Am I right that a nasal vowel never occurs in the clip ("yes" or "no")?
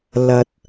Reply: yes